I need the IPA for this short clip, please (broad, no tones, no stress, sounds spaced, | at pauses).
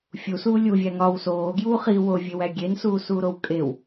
fʲ u s uː lʲ u vʲ æ ŋ ɒ w s oː ɡ j uː χ i w o vʲ e w æ ɡʲ e n s uː s uː ɾ o w kʼ e w